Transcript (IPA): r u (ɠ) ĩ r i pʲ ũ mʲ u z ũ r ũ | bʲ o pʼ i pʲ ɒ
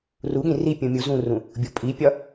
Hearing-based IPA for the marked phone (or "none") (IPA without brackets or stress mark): ɠ